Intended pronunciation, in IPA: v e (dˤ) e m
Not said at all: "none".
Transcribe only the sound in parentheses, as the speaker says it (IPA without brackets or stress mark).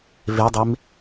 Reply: dˤ